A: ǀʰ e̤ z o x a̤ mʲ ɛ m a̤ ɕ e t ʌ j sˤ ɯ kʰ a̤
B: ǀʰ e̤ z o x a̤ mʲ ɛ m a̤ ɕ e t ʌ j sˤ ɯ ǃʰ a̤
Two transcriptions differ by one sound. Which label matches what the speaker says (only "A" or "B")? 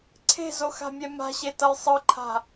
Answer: B